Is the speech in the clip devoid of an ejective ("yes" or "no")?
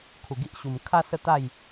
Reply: yes